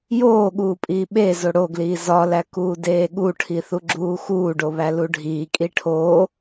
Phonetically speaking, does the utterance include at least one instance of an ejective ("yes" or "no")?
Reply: yes